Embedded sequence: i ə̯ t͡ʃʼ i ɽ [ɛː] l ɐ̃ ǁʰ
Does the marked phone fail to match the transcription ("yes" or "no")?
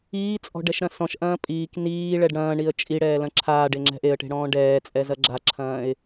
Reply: no